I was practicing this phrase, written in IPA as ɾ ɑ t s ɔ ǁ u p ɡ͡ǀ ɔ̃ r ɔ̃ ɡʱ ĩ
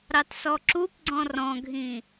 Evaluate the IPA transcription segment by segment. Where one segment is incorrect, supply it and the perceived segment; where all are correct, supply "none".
none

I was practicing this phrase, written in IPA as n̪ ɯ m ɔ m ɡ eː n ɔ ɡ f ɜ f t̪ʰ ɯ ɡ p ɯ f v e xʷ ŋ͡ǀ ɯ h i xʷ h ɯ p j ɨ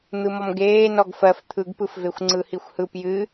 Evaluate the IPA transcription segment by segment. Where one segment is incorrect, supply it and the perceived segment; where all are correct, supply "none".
none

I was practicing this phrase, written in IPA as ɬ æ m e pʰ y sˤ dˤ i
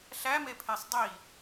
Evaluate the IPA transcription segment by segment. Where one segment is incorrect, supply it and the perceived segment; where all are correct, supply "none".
y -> e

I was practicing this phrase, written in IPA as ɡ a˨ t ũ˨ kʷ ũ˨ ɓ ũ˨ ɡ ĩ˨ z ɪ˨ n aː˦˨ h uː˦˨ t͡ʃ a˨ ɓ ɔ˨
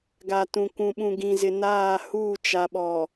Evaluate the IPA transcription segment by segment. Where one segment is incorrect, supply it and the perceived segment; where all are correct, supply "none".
none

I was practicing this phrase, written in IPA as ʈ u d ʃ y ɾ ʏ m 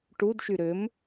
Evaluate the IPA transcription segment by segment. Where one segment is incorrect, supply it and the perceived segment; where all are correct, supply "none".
none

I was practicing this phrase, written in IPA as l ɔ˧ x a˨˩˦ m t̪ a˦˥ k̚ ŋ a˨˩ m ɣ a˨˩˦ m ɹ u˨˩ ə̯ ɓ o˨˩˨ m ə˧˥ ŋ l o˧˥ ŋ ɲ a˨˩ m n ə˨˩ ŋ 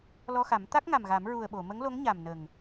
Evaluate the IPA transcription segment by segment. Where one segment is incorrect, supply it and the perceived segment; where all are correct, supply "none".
none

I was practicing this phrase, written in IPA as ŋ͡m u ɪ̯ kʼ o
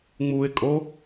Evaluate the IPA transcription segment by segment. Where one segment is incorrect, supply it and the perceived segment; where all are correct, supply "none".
none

